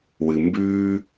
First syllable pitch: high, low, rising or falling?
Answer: low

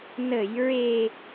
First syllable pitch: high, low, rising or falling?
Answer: low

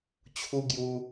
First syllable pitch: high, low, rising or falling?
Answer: high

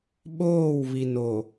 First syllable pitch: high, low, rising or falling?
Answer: falling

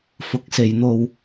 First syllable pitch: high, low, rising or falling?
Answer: rising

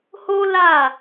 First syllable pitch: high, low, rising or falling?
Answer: high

